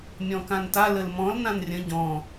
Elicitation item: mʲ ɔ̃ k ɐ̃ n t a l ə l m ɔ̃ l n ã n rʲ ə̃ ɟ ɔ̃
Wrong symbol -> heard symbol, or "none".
ɐ̃ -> ã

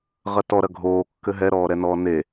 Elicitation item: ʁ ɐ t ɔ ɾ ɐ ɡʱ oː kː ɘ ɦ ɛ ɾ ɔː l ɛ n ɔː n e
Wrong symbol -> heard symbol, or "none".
l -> ɾ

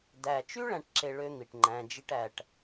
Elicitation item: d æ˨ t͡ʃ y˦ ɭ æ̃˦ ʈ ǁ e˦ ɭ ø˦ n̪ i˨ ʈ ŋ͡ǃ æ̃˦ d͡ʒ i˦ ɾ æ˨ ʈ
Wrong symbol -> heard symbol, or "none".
ɾ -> ʈ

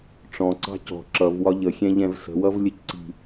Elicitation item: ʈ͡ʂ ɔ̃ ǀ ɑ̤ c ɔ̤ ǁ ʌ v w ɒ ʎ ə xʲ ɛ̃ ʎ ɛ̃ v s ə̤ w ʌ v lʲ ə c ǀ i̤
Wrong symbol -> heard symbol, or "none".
none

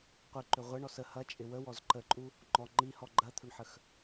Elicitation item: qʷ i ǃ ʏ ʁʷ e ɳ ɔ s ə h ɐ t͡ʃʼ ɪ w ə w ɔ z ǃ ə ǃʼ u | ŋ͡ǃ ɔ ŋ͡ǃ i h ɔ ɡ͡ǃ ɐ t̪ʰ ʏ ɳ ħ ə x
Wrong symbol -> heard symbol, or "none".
none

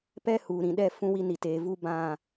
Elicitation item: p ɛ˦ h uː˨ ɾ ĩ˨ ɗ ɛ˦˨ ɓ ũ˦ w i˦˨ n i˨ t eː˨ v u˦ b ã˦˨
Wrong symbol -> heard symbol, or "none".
ɓ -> f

